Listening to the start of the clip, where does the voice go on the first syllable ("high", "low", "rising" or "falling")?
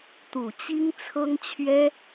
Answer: low